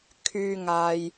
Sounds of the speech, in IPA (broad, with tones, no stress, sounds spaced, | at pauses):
kʰ yː˨ ŋ aː˨ j